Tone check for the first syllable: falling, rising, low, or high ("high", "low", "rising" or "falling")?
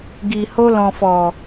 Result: low